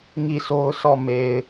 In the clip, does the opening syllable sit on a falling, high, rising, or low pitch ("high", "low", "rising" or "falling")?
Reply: falling